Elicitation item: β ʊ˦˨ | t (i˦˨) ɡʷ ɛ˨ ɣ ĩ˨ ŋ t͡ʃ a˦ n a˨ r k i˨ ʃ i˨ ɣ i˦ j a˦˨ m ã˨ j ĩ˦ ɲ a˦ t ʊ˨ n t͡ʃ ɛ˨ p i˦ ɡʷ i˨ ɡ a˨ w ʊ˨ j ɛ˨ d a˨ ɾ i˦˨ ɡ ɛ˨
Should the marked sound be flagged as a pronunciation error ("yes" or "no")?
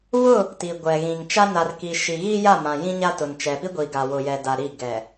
yes